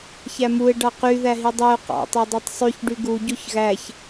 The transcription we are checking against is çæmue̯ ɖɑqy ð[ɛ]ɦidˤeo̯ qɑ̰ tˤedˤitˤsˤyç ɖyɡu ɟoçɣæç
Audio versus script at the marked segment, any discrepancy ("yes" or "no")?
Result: yes